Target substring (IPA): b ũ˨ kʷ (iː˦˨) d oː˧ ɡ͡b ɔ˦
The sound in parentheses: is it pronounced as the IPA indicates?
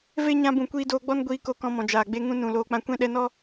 no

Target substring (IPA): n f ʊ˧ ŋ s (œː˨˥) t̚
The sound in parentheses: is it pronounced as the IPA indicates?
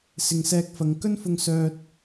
no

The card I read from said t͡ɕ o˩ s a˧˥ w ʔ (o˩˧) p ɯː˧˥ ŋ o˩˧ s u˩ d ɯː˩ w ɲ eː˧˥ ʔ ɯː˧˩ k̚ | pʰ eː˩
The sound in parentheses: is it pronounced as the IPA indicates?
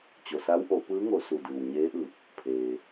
yes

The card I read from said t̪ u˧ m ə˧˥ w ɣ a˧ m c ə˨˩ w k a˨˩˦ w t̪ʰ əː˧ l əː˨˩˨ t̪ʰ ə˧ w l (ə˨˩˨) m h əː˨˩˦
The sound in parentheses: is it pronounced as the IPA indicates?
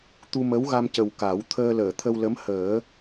no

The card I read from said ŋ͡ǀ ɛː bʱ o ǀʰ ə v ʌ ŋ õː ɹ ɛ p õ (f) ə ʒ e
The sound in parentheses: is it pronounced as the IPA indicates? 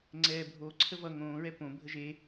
no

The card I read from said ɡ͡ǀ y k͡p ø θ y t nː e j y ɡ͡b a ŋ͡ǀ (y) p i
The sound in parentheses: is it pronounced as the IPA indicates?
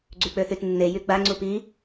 no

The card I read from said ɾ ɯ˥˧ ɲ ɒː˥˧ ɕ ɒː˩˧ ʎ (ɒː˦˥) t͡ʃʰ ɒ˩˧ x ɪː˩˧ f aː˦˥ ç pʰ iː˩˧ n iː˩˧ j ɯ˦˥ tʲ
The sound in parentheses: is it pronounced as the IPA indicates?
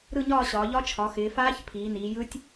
no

